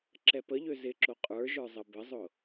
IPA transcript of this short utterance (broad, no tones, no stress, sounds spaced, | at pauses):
ǁ ɛ p ə ʎ ø z ɪ ǁ o qʼ ə˞ ʒ ə˞ zˤ ə b ə zˤ ʊ